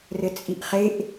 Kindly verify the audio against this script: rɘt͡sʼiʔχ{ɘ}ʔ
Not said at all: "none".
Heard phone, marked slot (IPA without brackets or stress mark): e